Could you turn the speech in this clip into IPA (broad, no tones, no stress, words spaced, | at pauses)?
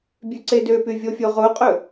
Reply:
bʲʉǀedøpy vʲofʲoʁoqʼɵ